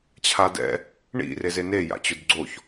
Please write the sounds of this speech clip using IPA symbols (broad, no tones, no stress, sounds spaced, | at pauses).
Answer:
t͡ɕʰ a d ɛ̰ | ɳ ḭ r e z e n e j a̰ t͡ɕ ʊ d ɡ͡ǀ o ç